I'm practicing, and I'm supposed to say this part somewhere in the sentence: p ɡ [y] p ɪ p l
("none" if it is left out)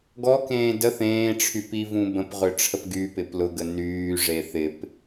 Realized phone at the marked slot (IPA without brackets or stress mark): y